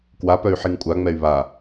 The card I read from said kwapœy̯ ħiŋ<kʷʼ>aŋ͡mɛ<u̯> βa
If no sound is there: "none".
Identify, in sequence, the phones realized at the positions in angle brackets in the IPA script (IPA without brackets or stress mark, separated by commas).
kʷʼ, y̯